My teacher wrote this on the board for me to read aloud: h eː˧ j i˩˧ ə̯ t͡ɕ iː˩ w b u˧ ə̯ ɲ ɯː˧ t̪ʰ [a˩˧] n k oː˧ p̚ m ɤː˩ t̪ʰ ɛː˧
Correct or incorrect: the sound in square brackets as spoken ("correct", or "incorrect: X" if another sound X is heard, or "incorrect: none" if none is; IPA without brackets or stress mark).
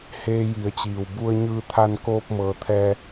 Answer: incorrect: a˧